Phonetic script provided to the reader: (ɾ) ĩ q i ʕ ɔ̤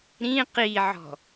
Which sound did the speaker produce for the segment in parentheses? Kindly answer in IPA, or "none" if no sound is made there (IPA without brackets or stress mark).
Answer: ɾ